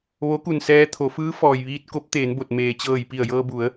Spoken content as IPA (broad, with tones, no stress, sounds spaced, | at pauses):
ʋ o˧˥ k u˧˩ n s ɛː˧ t̪ʰ o˩˧ f ɯː˧˥ f ɔː˩ j ʋ iː˧ t̚ k o˧˥ p̚ t̪ eː˩˧ n b o˧˩ t̚ m eː˩ t͡ɕ ɤː˧˩ j p i˧˩ ə̯ j ɤː˧ b u˩˧ ə̯